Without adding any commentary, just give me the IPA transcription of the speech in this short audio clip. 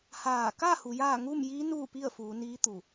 h aː˧˩ k a˥˨ h u˩˧ j aː˥˨ ŋ u˥˨ m j iː˧˥ n uː˥˨ p i˥˨ ə̯ f uː˩˧ n iː˧˥ t̪ u˧˩

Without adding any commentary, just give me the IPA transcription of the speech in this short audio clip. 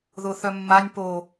ð ʊ θ œ mː a nʲ p o

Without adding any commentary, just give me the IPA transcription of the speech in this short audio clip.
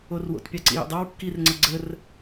o r w o̰ t pʲ ɑ ǀ ḭ j ə̰ dˤ ɑ w kː i r ŋ͡ǀ ʌ ɡ͡ǀ ə r

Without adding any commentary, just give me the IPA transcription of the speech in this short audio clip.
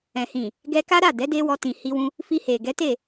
ɛ̃˨ h ĩ˨ | ɡ ɛ˧ k a˦ ɾ a˦˨ d ɛ˨˦ d e˦ w ɔ˧ t ĩ˨ h i˧ w ũ˧ | f i˧ h e˨ ɡ ɛ˨˦ t e˦˨

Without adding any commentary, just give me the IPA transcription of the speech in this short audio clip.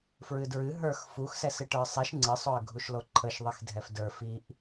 f ɹ ɨ d ɹ ɨ ɦ ə˞ x f u x s ɛ s ɨ ʈ ə˞ sˤ i ʃ ŋ͡ǀ ɨ sˤ o ə̯ ɡʱ u ʃ l o ǃʰ ə ʃ ðˤ i x dʱ ɛ f d ə˞ f i ʔ

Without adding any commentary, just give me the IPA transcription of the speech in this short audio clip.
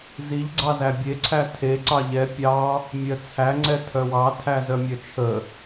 z i ʎ ɡ͡ǀ ɑ z æ bʲ e ǀʰ æ tʰ e ǀ ɑ ʎ ɛ pʲ ɑ | mʲ œ t͡sʰ æ ŋ͡ǀ ɛ tʰ œ w ɑ tʰ æ z œ mʲ œ t͡ʃʰ ə

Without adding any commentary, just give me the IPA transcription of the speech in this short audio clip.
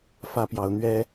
f ä˦ p j ɑ˨˦ ʊ̯ n̪ ɥ ɛ˦

